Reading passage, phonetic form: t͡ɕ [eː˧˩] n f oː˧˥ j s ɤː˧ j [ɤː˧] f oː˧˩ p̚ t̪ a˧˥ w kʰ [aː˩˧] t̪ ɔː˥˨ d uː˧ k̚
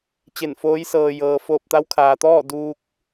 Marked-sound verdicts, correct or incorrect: incorrect, correct, incorrect

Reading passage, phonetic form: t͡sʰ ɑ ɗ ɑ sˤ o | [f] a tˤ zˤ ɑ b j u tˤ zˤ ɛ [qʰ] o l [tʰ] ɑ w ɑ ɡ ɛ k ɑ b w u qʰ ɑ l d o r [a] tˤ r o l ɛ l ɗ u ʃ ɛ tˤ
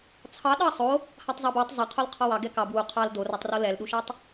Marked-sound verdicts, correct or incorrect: incorrect, correct, incorrect, incorrect

